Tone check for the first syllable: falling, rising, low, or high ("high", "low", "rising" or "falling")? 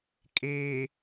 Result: low